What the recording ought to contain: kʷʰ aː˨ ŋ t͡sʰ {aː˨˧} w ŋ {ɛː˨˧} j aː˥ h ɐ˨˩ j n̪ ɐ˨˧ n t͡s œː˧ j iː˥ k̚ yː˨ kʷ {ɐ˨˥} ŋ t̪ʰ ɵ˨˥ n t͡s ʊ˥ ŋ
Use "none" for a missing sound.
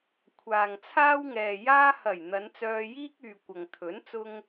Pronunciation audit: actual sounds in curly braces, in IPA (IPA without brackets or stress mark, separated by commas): aː˥, ɛː˨, ɐ˨